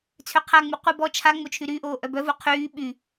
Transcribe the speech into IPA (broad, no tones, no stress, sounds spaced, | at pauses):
t͡sʰ ø qʰ a ŋ͡m u qʷ ə b ɔ t͡ʃʰ a ŋ͡m o t͡ʃʰ y ɾ yː ʔ oː ʔ œ b œ v u qʰ yː ɓ y